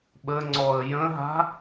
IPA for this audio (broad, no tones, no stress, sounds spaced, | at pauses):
ɓ ə ŋ͡ǀ ɔ ə̯ j ə̃ ɦ a̤